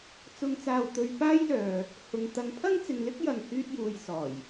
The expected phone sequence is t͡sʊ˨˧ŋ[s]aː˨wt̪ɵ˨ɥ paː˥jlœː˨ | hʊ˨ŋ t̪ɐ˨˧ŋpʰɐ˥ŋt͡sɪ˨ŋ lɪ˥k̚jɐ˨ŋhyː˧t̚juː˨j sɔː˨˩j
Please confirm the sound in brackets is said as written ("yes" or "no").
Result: no